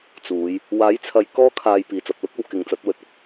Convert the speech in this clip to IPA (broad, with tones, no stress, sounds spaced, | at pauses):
t͡s uː˨˧ j | w aː˨˥ j t͡sʰ ɐ˨˧ j k ɔː˥ kʰ aː˧ j p iː˨ t͡s ɐ˨ p̚ l ʊ˥ k̚ o˨˧ w k ɪ˨˧ ŋ t͡s ɐ˨˥ t̚ w ɵ˨˥ t̚ ʊ˥ k̚